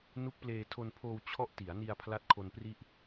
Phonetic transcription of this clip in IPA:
nu˦˥k̚pleː˧tʰo˧npʰoː˧w t͡ɕʰɔ˥˩ʔ ti˩˦a̯ni˧a̯ pʰla˦˥t̚kʰo˧npri˥˩ʔ

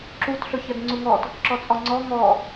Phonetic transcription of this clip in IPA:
ǁut ɬɵçɜdŋ͡ǀuŋɔt | ǁɔt͡sʼɔŋ͡ǀɔ ŋɔ

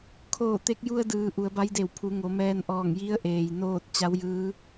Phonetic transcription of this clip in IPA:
kʰoː˧˩t̪e˧k̚ju˧ə̯dɯː˩ ʔu˩˧ə̯ba˧˥jde˧˩w pʰu˩˧ŋo˩˧mɛː˧nʔɔː˧˩ŋ ji˧˥ə̯ʔeː˩j noː˥˨t̚ t͡ɕa˧˥wjɯː˧˥

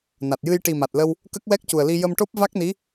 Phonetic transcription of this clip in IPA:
na˨˩t̚jɨ˧j ʈi˨˩ma˨˩t̚lə˧w | kə˦˥k̚wɛ˦˥k̚cu˨˩ə̯li˧ jə˧mʈo˦˥p̚ va˦˥k̚ni˧˥

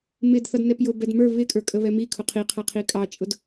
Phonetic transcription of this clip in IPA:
mɪd θʌdnɛpjʊ bɛdmə˞ βɪ kʼə˞kʼəβɛmi kʰʊqʰi qʰʌqʰikʼɑt͡ʃʼʊd

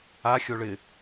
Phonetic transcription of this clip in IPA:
a xʲoɭɪ

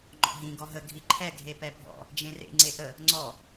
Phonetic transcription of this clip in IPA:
ŋ͡ǃɔ̰ɦĩ ɡɔɦə ɡʱiǃʰɛ ɡʱepɛbʱɔ̰ | d͡ʒẽrḛ ŋ͡ǀeʔə | ŋ͡ǀɔ

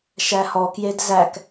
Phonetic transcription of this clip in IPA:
ʃæhɔkjed zæk

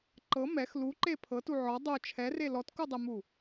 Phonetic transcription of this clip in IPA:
ǃɤ mɛx luǃe pʰɤtu ʕɔ dˤo t͡ʃʰɛre lɔtkudˤɛmu

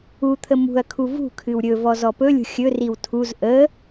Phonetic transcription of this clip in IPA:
ut̪ʰə mṳɐ̯kʰu vṳkʰɨw ɾʲɵ vɔzɔpɵlʲṳ xʲɵriw tʰuz ʔə

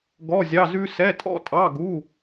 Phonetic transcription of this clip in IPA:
ɡɔ˧˥˧zʲɑ˧˥˧zʉ˥ sɛ˧˥˧tʼɔ̰˥tʼɑ˧˥˧ ɡu˧˥˧

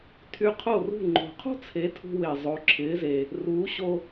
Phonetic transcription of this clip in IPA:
tʰy˧qʰo˥˩rṳ˥˩ ŋ͡ǃo̤˩qʰo̤˥t͡sʰe˩˥ tʰṳ˧we˩ zˤo˩˥ǁʰɪː˩˥ze˩ | ruː˩˥ɕo˧

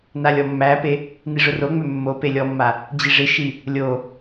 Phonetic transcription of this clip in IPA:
nalʲɔmːæpe | niʐʊroŋ͡mø mːope lʲɔmːa | d͡ʑiʐɪʃi | lʲo

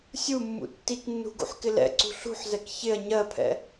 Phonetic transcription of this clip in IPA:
sʲumːṵ tːiknːṳ ɡṵħkɪlɛ̰ǀṳ ɬṳħzɛk çɪɐ̯ ɲɜpʰɛ̰

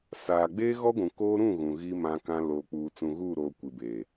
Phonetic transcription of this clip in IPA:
saː˨ɡ͡beː˦ɣɔ˦ ɡʷũ˨koː˦ ɾũ˦˨ ɣũ˨ɣi˦ mã˦kã˦ loː˨k͡puː˨ t͡sũ˨ɣuː˦˨ɾoː˨ kʷi˨beː˨

